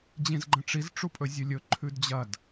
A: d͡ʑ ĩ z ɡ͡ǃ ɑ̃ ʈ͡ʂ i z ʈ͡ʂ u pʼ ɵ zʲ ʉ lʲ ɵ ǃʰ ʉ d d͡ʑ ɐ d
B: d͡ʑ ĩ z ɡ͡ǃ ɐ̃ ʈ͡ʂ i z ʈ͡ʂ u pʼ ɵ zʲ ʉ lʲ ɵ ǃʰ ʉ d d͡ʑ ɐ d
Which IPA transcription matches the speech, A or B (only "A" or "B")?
B